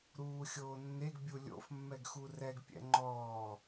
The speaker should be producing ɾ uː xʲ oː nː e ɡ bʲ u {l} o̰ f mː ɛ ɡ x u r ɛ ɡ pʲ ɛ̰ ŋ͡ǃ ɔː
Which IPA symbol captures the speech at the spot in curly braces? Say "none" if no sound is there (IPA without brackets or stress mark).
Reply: lʲ